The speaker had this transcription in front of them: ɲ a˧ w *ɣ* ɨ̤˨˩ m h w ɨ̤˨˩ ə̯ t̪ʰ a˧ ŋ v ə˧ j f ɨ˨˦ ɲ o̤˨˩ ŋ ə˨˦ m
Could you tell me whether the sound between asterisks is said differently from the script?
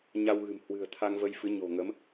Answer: no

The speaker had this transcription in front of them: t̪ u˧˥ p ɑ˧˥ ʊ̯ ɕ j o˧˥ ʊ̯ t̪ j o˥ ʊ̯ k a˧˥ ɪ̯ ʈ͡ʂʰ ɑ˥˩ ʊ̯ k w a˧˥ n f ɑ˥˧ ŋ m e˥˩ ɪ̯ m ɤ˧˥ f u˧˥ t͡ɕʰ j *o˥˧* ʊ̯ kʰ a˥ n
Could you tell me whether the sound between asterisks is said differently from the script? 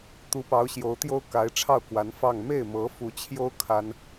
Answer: yes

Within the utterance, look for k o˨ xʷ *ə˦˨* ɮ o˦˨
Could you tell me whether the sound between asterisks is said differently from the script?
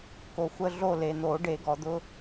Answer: no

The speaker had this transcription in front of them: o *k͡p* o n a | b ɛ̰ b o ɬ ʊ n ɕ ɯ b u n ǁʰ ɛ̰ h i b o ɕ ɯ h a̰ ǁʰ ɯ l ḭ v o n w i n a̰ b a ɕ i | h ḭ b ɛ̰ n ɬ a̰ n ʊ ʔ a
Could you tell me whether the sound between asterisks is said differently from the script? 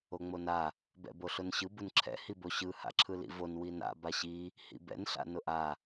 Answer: yes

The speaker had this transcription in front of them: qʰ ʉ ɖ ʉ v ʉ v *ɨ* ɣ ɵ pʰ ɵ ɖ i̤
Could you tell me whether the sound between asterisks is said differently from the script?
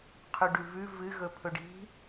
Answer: no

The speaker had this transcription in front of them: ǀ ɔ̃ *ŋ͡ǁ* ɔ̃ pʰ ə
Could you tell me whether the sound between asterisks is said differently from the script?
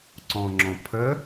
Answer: no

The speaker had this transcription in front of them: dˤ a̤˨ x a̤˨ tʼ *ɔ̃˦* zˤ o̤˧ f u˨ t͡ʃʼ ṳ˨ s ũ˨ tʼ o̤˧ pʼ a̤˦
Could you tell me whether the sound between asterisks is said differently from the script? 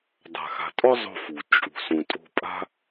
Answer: yes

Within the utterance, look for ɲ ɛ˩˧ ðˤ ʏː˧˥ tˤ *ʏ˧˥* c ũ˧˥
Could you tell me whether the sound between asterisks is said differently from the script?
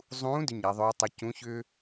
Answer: no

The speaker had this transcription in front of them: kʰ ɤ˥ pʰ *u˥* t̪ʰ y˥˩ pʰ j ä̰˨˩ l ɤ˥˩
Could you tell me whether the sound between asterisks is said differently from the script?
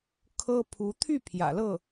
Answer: yes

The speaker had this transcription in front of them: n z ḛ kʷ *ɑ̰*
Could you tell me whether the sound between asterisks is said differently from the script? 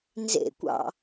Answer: no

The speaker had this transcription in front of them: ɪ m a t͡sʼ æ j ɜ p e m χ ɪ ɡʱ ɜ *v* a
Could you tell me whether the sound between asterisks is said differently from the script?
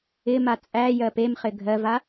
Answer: no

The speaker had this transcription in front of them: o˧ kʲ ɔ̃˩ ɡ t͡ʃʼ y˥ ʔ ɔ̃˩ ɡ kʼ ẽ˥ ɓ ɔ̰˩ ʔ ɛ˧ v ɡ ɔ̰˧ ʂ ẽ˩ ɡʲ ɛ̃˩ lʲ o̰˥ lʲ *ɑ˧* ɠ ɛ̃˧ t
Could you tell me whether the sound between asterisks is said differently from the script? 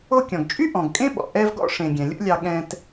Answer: no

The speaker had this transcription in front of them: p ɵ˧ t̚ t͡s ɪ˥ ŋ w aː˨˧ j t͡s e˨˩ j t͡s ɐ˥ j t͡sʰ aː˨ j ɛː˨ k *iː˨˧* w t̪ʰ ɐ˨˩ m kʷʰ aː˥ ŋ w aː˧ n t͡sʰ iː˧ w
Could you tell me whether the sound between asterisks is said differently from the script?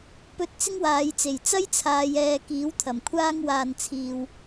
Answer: yes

